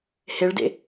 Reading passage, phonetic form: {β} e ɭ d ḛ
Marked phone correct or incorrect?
incorrect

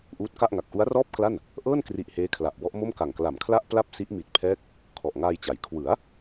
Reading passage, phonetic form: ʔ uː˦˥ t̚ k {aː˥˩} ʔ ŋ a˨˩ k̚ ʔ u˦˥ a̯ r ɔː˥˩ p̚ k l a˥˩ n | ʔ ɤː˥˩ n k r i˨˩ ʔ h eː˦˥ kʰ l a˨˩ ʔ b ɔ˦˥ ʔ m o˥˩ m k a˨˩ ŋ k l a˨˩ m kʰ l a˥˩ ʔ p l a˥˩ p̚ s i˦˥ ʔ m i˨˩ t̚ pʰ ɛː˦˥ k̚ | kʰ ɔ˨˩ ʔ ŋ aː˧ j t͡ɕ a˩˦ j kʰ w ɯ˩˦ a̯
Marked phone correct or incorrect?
incorrect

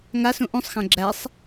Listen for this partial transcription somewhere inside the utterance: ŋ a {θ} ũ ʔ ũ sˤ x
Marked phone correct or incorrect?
incorrect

